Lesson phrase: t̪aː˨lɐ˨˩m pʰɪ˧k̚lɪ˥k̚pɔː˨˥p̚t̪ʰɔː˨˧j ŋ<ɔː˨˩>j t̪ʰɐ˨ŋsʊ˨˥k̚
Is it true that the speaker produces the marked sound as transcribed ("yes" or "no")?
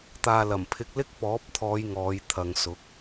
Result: no